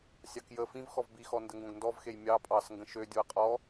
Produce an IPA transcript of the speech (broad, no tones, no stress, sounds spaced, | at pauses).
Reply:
sʲ ɑ k j ə f ĩ v x ɔ v b i x ɔ n d ə ŋ ɡ õ ɡ n d ɔ v x e j mʲ ɑ pʼ ɑ s ŋ ɡ ə̃ ʃ ø dʲ o ə̯ qʼ ɔ